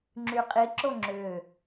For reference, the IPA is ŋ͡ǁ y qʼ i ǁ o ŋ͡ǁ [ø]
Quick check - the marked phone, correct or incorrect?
correct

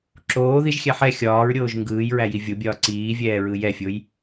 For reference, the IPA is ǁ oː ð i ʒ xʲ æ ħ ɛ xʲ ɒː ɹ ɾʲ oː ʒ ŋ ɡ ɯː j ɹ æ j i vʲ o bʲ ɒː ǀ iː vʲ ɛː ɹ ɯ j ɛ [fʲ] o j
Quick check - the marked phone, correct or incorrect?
correct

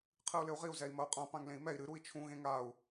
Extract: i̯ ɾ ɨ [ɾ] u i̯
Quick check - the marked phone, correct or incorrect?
correct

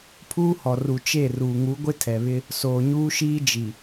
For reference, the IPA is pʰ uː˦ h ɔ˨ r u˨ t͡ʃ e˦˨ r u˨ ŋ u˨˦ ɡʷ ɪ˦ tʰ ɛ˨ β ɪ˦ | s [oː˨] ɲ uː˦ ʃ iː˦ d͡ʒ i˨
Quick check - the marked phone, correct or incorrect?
correct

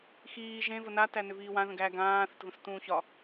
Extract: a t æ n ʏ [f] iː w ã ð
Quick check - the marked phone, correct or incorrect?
incorrect: v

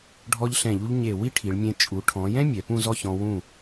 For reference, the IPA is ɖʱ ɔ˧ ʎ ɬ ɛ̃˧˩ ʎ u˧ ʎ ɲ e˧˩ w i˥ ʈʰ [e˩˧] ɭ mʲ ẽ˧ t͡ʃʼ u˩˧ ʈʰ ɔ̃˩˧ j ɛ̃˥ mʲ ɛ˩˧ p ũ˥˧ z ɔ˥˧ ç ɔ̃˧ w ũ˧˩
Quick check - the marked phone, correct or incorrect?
incorrect: i˩˧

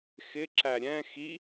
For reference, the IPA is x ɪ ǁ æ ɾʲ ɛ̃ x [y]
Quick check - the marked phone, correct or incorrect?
incorrect: i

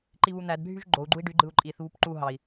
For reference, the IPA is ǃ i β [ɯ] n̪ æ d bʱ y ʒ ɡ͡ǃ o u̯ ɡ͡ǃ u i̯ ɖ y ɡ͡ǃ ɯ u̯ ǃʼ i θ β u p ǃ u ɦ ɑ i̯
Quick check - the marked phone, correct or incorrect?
incorrect: u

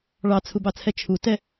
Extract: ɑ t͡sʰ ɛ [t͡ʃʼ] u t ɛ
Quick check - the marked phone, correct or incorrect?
incorrect: t͡ʃʰ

